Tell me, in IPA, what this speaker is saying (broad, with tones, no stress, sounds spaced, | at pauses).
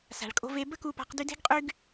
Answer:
s a̤˨ ɭ kʼ o̤˧ v e˧ b ə˦ k u˧ p a̤˧ q d y˧ d e̤˦ ɡ qʼ y˦ ɡ